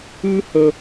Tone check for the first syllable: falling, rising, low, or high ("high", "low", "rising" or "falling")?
high